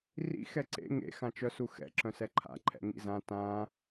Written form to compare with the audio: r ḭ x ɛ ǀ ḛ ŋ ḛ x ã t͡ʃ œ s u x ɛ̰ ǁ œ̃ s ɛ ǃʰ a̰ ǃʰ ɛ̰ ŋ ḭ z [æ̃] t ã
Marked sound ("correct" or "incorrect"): incorrect